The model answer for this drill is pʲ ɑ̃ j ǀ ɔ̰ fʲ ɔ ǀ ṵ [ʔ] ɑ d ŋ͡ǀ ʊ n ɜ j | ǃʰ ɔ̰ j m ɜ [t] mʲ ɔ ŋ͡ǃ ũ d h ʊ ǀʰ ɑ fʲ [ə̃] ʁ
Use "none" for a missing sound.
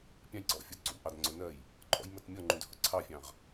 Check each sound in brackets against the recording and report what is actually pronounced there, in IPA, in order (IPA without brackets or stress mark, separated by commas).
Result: ʔ, t, ɑ̃